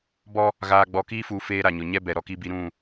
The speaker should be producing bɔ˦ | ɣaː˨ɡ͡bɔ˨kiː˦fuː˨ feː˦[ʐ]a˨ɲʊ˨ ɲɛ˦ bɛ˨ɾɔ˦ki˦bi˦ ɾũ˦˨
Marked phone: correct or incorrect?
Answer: incorrect